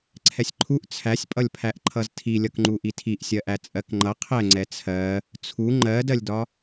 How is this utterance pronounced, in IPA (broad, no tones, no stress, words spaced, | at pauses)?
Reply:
ǀʰɛsʲǃʰuʔ t͡sʰæsʲpʼʌlʲpʰæʔ ǃʰʌztʰilʲʌkŋ͡ǃu ʔitʰiʔsʲɜʔæ t͡sʼɜkŋ͡ǃʌ qʰɛŋ͡ǀɛ t͡sʰɜ | t͡sʰu ŋ͡ǃɜdɜlʲdɒ